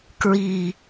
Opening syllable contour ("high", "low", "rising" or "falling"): falling